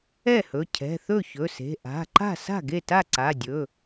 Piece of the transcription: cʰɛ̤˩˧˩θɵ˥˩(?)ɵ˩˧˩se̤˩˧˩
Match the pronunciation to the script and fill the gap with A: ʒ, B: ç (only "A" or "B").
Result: B